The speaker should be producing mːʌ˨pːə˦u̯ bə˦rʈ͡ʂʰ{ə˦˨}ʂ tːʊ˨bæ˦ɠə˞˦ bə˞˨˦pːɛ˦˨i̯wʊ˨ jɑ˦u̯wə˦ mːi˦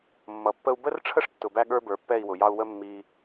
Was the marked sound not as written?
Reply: yes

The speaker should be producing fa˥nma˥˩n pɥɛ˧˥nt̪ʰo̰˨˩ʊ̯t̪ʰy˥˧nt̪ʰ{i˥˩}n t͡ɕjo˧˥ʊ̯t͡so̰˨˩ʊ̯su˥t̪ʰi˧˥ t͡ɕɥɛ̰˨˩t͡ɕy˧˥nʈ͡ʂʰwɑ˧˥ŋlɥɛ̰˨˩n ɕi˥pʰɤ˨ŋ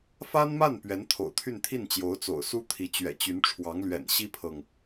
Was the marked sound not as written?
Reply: no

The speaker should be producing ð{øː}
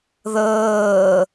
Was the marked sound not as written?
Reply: yes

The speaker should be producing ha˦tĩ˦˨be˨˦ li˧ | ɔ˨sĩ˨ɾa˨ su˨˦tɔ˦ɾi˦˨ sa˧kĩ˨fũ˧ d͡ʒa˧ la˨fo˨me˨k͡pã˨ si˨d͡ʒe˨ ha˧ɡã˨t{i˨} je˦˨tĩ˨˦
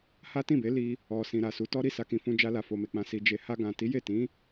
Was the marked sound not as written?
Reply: yes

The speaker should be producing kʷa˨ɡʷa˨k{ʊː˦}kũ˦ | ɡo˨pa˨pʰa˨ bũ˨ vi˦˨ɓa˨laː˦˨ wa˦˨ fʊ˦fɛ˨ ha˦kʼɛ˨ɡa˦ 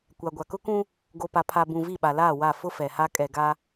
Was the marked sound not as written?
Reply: yes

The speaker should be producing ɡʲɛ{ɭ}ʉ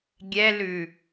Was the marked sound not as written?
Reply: yes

